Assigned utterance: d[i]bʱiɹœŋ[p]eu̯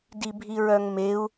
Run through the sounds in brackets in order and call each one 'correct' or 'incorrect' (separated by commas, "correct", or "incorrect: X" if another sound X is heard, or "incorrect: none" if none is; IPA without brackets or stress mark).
correct, incorrect: m